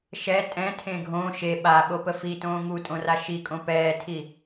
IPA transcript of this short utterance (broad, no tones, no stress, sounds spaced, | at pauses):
ʃ ɛ tʼ ɛ̃ tʰ ẽ ɡʱ õ ʃ e ɓ a ɓ o p ə f i t õː ŋ u tʼ õ r a ʃ i kʼ õ p ɛː tʰ i